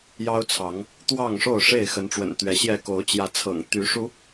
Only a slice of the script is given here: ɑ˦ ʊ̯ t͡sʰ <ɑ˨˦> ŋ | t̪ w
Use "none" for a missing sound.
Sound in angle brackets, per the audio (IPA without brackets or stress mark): ɑ˨˦